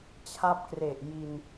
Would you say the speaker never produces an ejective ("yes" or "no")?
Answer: yes